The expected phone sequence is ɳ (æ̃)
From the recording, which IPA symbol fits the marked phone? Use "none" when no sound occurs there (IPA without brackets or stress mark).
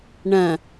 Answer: ɐ̃